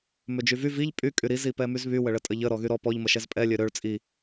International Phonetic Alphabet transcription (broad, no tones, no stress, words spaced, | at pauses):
mød͡ʒyvy viʎ pʼy kʼyɾi zipɛmyzβy wəɭətʼəʎə ɾɔɣyɾɔ pɔʎ məʃɛzpʼɛ lʲøɾøɭ t͡sʼi